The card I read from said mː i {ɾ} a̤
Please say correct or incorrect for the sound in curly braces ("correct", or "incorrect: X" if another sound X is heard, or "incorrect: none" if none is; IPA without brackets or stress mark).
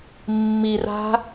incorrect: r